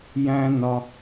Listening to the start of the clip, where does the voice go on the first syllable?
high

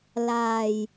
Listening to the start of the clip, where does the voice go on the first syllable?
low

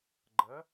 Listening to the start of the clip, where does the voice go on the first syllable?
rising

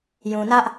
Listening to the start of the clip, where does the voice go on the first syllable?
low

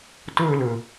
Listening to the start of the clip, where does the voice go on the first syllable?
high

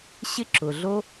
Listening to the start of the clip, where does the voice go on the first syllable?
high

